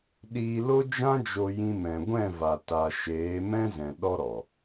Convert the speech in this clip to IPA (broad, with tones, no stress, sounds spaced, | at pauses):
ɗ iː˧ l o˦ d͡ʒ ã˦ d͡ʒ o˧ j ĩ˧ m ɛ̃˨ ɡʷ ɛ̃˦˨ v a˨ t a˨ ʃ eː˨˦ m ɛ̃˦ z ɛ̃˨ ɗ ɔ˦ ɾ ɔ˨